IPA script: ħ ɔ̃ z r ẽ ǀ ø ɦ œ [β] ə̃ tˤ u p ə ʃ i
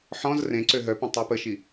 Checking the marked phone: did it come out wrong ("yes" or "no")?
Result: yes